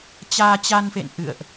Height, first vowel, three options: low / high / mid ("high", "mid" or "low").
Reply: low